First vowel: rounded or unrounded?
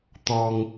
rounded